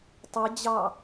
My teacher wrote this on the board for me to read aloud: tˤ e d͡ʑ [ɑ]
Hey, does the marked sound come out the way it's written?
yes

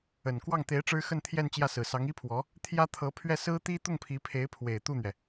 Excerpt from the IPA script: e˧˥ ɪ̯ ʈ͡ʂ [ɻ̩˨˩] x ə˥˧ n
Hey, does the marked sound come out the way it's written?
no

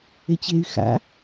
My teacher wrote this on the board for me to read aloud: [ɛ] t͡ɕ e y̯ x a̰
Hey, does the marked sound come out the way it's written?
no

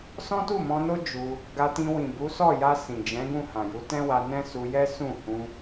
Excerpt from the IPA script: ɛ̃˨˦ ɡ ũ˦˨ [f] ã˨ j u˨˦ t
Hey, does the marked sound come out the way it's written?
no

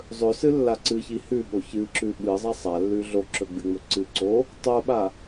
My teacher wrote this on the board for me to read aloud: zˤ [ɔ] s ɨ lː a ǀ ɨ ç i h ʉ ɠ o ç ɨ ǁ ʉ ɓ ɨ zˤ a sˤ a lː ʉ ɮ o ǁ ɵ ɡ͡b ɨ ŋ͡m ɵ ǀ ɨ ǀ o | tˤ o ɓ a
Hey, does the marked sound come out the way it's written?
no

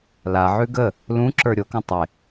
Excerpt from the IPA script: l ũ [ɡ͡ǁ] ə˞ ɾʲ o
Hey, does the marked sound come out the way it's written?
no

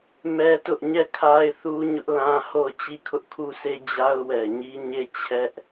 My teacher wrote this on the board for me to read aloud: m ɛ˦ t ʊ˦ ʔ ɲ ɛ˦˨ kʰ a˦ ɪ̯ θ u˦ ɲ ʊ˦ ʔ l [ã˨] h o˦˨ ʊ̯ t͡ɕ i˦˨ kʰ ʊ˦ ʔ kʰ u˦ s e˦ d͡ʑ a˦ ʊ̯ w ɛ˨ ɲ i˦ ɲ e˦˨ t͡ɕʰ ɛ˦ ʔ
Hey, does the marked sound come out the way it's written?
no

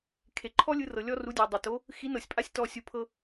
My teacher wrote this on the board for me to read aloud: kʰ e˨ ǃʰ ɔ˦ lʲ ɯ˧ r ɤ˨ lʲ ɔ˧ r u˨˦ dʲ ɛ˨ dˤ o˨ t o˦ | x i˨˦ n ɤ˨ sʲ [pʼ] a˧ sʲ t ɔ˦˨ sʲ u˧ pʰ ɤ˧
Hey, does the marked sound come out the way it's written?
yes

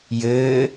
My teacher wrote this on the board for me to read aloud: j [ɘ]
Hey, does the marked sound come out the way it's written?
yes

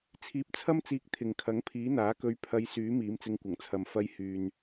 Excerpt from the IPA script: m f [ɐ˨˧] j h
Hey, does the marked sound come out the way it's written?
no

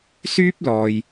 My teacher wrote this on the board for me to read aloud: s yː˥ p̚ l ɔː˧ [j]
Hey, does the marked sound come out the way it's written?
yes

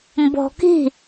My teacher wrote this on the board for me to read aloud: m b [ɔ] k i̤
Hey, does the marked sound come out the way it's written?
no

